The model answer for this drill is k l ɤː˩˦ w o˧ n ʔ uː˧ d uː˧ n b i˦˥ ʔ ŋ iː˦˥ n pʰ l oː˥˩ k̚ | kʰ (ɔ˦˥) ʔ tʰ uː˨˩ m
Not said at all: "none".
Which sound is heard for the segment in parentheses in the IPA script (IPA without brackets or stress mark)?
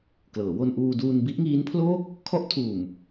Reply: ɔ˦˥